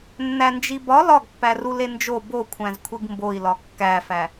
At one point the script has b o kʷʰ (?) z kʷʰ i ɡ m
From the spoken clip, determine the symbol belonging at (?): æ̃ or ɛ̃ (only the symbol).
æ̃